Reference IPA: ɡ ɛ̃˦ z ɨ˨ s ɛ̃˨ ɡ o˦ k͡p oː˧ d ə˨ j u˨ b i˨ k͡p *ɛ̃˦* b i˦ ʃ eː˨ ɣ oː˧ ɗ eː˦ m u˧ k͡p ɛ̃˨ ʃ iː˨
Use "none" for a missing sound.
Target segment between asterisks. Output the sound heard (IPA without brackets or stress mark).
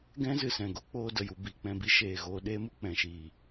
ɛ̃˧